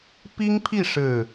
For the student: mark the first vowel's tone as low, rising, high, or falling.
high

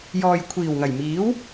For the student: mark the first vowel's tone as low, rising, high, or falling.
low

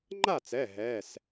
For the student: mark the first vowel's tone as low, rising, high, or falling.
falling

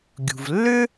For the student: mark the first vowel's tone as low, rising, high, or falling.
low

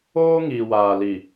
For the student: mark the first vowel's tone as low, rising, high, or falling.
high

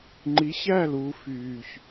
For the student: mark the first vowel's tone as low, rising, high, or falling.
rising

